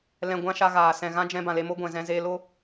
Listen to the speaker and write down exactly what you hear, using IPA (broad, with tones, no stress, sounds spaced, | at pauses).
l ɛ̃˧ ɡʷ ã˦ ʃ a˧ ɣ aː˨ s ɛ̃˨ ɣ ã˦ d͡ʒ ɛ̃˧ b ã˨ l e˧ m o˦ ɡʷ ɛ̃˨ z ɛ̃˧ z eː˧ l o˦